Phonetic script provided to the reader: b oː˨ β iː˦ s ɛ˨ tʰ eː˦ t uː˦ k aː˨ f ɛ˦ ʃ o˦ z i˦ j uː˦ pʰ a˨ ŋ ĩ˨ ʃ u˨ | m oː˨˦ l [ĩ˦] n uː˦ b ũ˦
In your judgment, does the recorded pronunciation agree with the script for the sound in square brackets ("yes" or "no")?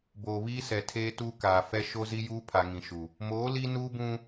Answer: no